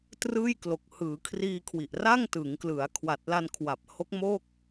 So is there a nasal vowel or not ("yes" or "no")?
no